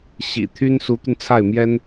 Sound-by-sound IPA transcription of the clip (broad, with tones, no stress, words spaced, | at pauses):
ɕḭ˨˩ t̪ʰy˥n su˧˥t̪y˧nt͡sʰa˥˩ɪ̯mjɛ˥n